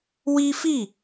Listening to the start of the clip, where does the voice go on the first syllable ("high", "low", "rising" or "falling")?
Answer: high